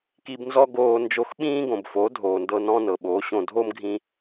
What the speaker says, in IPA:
k i˧ b n z ɔ˦ ɡ oː˧ n d͡ʒ o˧ x ɓ ĩː˦ ɡ õ˨ b f o˨˦ dʱ oː˨ n d ɤ˧ n ɔ̃˦ n ɤ˨ ɓ oː˨˦ ɕ õ˧ dʱ o˦ m ɡʱ ĩ˧

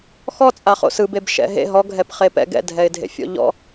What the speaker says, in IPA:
x ɔ t͡sʼ a χ o̰ s ɯ b e b ʃ ɛ̰ ɦ ḛ ɦ ɔ ɡʱ ɛ p χ e p ɛ̰ ɡ ɛ̰ dʱ ɛ ɪ̯ dʱ ḛ fʲ ɔ̰ ʎ ɔ̰

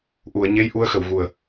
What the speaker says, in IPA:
ʔ u˨˩˨ ə̯ ɲ e˧˥ j ʔ u˧˥ ə̯ x ə˨˩˨ w ɣ u˨˩ ə̯

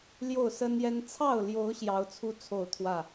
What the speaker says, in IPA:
l j o˥˨ ʊ̯ s ə˦ n j ɛ˦ n t͡sʰ ɑ˥˨ ʊ̯ l j o˨˦ ʊ̯ ɕ j ɑ˨˦ ʊ̯ t͡sʰ u˦ t͡sʰ o˥˨ ʊ̯ t̪ʰ w ä˥˨

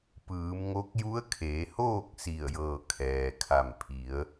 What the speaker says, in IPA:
p ɯː˩˧ m ŋ o˧˥ k̚ j u˧˥ ə̯ kʰ eː˩˧ h oː˥˨ k̚ s i˧˩ ə̯ j ɤː˧˩ kʰ ɛː˩ kʰ a˧˩ m pʰ i˩˧ ə̯

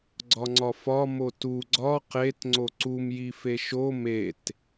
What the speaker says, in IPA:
ɡ͡ǀ ɒ ŋ͡ǀ ɒ f ɒ m o t u ɡ͡ǀ ɒ q e t ŋ͡ǀ o ǀ u m j i f e ʃ o m e t

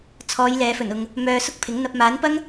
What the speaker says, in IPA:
t͡sʰ ɔː˨˧ j l ɛː˨˧ f ɵ˨˩ n ʊ˨ ŋ | m œː˧ s ʊ˥ k̚ pʰ ɪ˨˥ ŋ n̪ ɐ˧ p̚ m aː˨˥ n p ɐ˥ ŋ

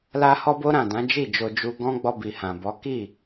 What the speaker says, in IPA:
l a˦ h ɔ˦ b o˦ ɾ ã˦˨ d ã˨˦ d͡ʒ i˦˨ d͡ʒ o˧ d͡ʒ u˧ ɡ ɔ̃˧ ɡ͡b ɔ˧ b i˨ h ã˨ b ɔ˨˦ k i˦˨

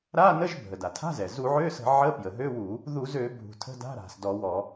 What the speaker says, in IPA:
ɾ a˧˥˧ n ə˧˥˧ ʒ bʱ ə˩ d a˩ tʰ a̤˧˥˧ z ɛ˩ z u˧˩˧ ʕ ø˧˥˧ s ə̤˧˩˧ ʕ ə˧˥˧ p j ə˩ ɦ ø˧˥˧ w u˧˩˧ | ð u˧˩˧ z ø˧˩˧ bʱ ṳ˩ tʰ ə̤˧˥˧ d a̤˧˥˧ ɾ a̤˩ s d ɔ˧˩˧ w ɔ˧˩˧

